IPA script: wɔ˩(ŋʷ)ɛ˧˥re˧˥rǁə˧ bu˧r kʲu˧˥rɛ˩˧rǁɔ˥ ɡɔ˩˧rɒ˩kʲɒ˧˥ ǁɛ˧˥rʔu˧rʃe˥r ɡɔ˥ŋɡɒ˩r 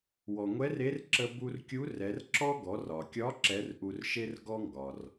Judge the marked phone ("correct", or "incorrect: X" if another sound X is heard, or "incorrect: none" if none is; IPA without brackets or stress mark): correct